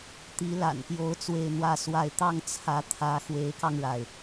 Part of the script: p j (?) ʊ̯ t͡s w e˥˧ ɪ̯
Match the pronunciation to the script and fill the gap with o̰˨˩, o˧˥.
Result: o˧˥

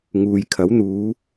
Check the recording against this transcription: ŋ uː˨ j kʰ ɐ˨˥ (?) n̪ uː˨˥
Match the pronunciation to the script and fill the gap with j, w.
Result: w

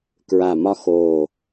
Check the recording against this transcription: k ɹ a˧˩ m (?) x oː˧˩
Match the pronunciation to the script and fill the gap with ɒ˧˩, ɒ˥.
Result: ɒ˥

